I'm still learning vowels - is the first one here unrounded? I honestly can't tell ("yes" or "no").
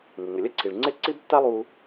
yes